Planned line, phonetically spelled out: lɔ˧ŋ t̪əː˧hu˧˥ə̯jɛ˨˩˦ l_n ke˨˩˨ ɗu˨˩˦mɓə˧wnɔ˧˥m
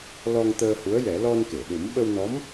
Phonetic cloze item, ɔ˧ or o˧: ɔ˧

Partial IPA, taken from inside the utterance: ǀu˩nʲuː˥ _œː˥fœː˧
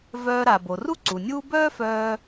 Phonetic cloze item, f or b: b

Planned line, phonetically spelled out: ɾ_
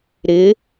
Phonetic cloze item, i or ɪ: ɪ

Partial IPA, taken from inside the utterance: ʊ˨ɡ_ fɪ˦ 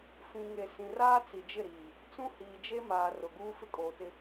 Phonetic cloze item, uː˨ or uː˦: uː˦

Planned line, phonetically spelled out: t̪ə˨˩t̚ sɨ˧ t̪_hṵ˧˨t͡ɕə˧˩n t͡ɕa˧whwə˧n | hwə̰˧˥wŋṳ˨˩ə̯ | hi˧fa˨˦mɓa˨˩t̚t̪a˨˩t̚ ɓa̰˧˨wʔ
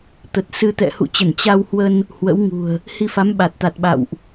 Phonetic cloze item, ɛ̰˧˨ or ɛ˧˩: ɛ̰˧˨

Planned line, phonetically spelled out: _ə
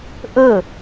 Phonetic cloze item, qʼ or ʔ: ʔ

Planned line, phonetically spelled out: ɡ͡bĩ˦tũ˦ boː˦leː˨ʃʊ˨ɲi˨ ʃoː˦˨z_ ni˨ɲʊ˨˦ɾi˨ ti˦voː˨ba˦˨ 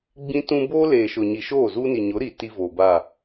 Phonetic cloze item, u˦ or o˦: u˦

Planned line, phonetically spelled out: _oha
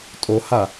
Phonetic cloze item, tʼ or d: tʼ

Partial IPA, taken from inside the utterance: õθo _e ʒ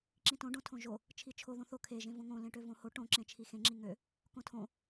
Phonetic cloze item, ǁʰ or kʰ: kʰ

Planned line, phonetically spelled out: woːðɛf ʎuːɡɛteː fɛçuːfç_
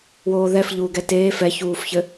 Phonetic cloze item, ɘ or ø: ɘ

